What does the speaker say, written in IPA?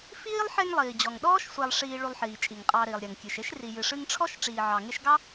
f iː˥ lˠ ħ e˦ ŋ lˠ iː˩ d͡ʑ ɔ˩ ŋ ɗ ɔː˥ ʃ sʷ ɛ˨ lˠ ʂ iː˨ ɭ u˨ lˠ ħ iː˩ t͡ʃʼ i˩ ŋ qʼ ɑ˨ ɾ iː˩ lˠ ɾʲ ɛ˩ ŋ kʲ ɨ˩ ʃ e˥ ʃ r i˨ j ɨ˨ ʂ ɨ˦ ŋ ʈ͡ʂʰ ɔ˥ ʃ ʈ͡ʂ iː˨ ʕ ɑ˨ ŋ e˦ ʃ ɡ ɑ˥

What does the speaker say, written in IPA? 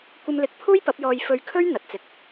kʷ ɐ˧ m l ɪ˨˥ k̚ pʰ uː˥ j p ɐ˨˥ p̚ j ɔː˧ j f ɵ˧ ɥ kʰ ɵ˥ ɥ n̪ ɐ˨ t̚ t͡s ɪ˧ k̚

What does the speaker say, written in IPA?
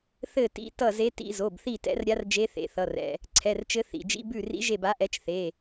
θ ɘ˦˨ t ḭ˧˥˧ t ʌ˦˨ z e˧˥ t ḭ˧˥˧ z o˩˧˩ b θ i˦˨ t ɛ̰˧˥ r ɾʲ a˧˥ r d͡ʒ e˧˥ θ ḛ˩˧˩ θ ʌ˩˧˩ r ɛ̰˩˧˩ | ǀʰ ɛ˩˧˩ r t͡ʃ ɘ˧˥ θ ḭ˩˧˩ d͡ʒ ḭ˧˥˧ b ʉ˦˨ r ḭ˧˥ ʒ e˦˨ b a˧˥ ʔ ɛ˧˥ t͡ʃ θ e˩˧˩

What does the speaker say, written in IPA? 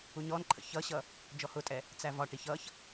u ɲ ɔ n ǃʰ ə̰ ç ʌ ɕ ʌ | d͡ʒ ɔ h ʊ tʼ ɛ | t͡s æ v ɒ ʈ i ç ʌ ç

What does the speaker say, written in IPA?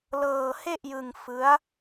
l ɤː˧ h e˥˩ ʔ j ɯ˧ ŋ f ɯ˦˥ a̯

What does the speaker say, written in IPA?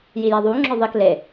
j i j a ðˤ u ŋ͡ǁ ɔ ðˤ i k l e

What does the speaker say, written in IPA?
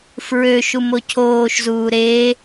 f ɹ ø ʃ u m o cʰ oː ʃ z uː ɾ e

